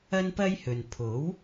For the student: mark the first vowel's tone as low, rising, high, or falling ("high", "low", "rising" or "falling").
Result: high